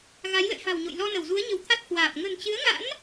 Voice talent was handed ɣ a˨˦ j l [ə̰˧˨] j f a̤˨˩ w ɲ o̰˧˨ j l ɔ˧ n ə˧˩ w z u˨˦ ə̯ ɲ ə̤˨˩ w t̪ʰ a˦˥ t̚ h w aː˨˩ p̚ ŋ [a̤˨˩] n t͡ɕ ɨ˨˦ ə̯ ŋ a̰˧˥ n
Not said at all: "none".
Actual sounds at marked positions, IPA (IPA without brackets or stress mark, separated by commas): ə̰˧˨, ə̤˨˩